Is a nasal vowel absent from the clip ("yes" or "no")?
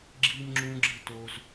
no